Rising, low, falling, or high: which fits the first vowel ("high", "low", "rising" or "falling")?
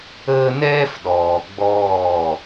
high